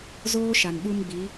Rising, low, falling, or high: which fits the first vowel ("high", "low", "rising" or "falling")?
high